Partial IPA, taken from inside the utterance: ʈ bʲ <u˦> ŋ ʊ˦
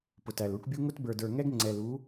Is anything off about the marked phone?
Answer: no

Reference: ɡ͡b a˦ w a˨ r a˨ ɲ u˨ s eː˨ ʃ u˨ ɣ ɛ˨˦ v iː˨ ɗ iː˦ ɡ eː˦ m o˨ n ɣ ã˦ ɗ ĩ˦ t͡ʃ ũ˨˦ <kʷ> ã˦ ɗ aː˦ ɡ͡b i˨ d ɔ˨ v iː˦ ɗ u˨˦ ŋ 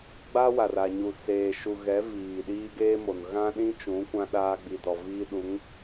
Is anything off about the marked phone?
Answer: no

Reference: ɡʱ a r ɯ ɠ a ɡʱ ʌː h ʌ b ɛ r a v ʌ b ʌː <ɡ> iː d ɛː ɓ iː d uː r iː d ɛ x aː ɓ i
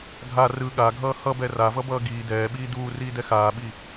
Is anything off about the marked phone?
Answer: no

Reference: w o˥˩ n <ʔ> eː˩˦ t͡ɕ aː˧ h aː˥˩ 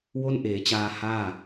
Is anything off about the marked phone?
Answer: no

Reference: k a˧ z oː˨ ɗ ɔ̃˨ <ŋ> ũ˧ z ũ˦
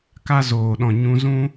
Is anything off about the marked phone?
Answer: yes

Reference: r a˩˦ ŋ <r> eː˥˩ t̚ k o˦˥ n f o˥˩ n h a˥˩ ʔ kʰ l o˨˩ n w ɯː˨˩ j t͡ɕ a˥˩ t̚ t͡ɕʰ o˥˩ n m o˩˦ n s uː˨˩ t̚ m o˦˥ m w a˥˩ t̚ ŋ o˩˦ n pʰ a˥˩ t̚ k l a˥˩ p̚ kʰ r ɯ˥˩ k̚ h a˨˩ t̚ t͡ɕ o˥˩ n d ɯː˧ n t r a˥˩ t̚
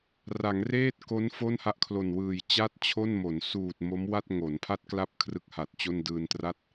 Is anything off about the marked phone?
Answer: no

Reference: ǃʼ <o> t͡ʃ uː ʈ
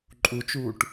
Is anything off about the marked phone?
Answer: yes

